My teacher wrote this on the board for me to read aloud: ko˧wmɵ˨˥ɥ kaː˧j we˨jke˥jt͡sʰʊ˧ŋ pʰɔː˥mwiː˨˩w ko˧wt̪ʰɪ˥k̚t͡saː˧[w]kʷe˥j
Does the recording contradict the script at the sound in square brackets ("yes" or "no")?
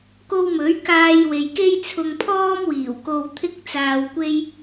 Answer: no